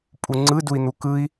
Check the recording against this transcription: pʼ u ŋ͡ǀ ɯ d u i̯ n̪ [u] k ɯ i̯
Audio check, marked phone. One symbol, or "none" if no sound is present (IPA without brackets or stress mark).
u